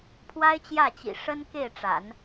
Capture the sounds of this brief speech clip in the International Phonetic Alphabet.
pʰ w a˥ ɪ̯ t͡ɕ j ä˥˩ t͡ɕ ḭ˨˩ ʂ ə˥ n k e˥˩ ɪ̯ ʈ͡ʂ a̰˨˩˦ n

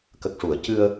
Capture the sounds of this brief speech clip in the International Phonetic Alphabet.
k ə˨˩ k̚ ʂ u˨˩˨ ə̯ c ɨ˧ ə̯

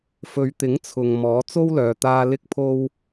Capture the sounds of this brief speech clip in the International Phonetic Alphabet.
f ɵ˨˧ ɥ t̪ ɪ˨˥ ŋ t͡sʰ ʊ˨ ŋ m ɔː˨˥ t͡s o˥ w l œː˨ t̪ aː˧ l ɪ˥ k̚ pʰ o˥ w

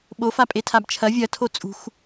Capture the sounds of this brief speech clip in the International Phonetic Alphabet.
ɓ o f a pʼ e tʰ a b t͡ʃʰ ɐ vʲ ɐ tʰ o t͡sʼ ṳ x

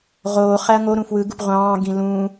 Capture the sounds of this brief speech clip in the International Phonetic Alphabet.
ʁ oː χ æ ɐ̯ ŋ o ɾ ũ f w ɯ ɡ u p ʁʷ ɑ̃ː ɡ ĩ l ũ

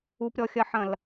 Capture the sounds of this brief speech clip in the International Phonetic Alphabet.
u p ɾʲ ɔ xʲ ɐ ħ ɐ̃ l

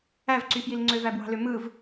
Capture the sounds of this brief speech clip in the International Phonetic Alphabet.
æ v ǀ y f j i l ŋ͡ǀ ø v æ b w ɑ̤ l ø m ɯ v

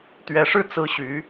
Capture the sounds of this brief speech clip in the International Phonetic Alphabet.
t̪ ɥ ɛ˧˥ ʂ ɻ̩˥˩ t͡s ɹ̩˥ ɕ y˧˥

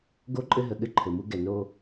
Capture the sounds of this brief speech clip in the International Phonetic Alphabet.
ɡ o˦˨ ǃʼ ɘ˦ ɦ ə˨ ɠ ɘ˦˨ ǃʰ ɘ˨ m u˦ ɡ ɛ˨ n o˦

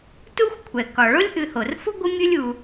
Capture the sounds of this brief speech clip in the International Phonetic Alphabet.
t u˦ xʷ kʷʰ ɛ˩ k ɒ˩ ɭ o˦ lʲ ʔ ɨ˨ h o˩ r f ʊ˥ ɡʷ ə˦ mʲ ɨ˦ lʲ u˨

